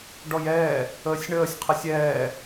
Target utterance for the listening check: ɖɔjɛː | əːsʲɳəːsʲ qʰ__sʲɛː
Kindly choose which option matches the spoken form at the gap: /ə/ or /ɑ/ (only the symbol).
ə